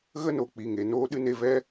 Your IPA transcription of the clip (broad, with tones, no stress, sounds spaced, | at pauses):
ɣ ə˦ n o˨ k͡p i˨ ŋ e˨ n oː˧ ɗ ɨ˧ n e˧ v ɛ˦